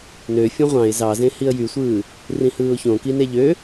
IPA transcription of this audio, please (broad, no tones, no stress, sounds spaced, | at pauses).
n ø fʲ õ ʁʷ ɑ̃ ɪ̯ z ɑ z ẽ h i ə̯ j y sʷ ɯː | r ĩ h ɯː ʊ̯ ç õ k i n e ʎ ø